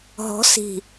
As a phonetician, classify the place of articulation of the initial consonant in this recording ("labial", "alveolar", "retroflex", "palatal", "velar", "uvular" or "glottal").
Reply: glottal